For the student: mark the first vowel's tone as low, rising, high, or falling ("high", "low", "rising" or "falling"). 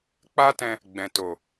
high